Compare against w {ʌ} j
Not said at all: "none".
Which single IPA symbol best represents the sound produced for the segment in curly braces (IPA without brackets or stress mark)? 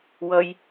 ʌ